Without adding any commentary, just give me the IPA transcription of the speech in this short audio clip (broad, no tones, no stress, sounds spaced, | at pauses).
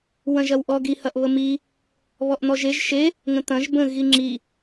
w ɐ̃ ʒ ɐ w ʔ ɔ ɡ i h ɐ ʔ β ə m i | β ɔ ʔ n̪ ɔ ʒ e ʒ ʃ e | ŋ ə̃ t̪ ɐ̃ ʒ b ə̃ ɣ i ŋ͡ǁ i